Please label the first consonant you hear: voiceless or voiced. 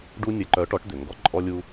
voiced